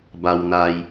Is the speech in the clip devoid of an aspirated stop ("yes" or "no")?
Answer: yes